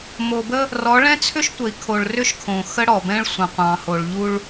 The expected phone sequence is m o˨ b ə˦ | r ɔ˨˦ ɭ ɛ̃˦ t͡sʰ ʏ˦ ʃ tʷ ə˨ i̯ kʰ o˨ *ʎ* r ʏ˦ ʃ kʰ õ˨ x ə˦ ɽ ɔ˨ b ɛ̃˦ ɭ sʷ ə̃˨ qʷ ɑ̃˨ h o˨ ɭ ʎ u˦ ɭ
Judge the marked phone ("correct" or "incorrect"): incorrect